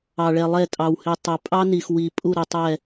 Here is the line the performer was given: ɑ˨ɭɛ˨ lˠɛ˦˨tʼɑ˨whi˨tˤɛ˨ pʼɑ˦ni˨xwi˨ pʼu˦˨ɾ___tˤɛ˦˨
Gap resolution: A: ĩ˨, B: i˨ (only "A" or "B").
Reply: B